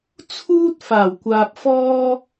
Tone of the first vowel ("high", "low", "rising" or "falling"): high